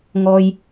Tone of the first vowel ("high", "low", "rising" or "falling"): low